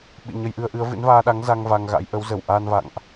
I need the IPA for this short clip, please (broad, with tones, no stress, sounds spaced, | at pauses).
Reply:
ɓ ḭ˧˨ ɲ ə˧ j ʔ ɨ˧ ə̯ ʔ ɨ˨˦ ə̯ v ɨ̰˧˥ n v aː˧ ɗ a˨˦ ŋ z a˧ ŋ v a˧ ŋ ɣ a̰˧˥ j ʔ ə˨˦ w z ə˧˩ w ʔ aː˧ n v a̰˧˨ ŋ ʔ